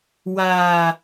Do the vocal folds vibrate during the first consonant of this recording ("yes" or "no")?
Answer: yes